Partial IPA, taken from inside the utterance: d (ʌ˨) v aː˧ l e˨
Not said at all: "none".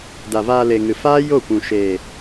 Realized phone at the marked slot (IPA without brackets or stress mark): a˨